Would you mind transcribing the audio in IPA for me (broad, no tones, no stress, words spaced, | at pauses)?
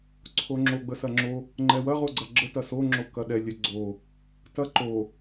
ǀʰoŋ͡ǁo ɡ͡bəsɐŋ͡ǁo | ŋ͡ǃɛwɐ ʁoɡ͡ǀɐɡ͡ǁə tɐso ŋ͡ǁokɐɗɛ lʲɛɡ͡ǀo | tɐ ǃo